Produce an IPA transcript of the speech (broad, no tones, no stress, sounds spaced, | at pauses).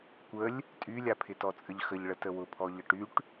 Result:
kʷ ə lʲ | tʼ y lʲ a pʰ ɪ t ɔ t͡sʼ ə ʎ x ə ʎ ɭ ə t ə w ʊ pʰ ɔ ʎ ə ʈ y ʈ